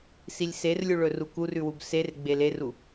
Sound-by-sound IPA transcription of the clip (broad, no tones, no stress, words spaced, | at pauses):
silʲserlʲuɭɵ rukurʉwub ser ɡ͡beleru